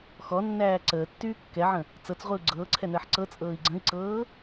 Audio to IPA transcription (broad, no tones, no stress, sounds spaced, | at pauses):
x ɔ nː æː ǀ əː tː yː kː ɛ ʕ ə̃ | t͡s ɤ t͡s ʁʷ i u̯ ɡ͡ǀ ɤː ǀʰ ɛ n əː ħ ǀ ɤ t͡sʼ ɤː i̯ ɡ͡ǀ ə̃ i̯ ǀ ɤː